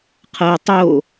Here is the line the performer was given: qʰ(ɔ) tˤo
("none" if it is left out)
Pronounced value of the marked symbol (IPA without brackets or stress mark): ɤ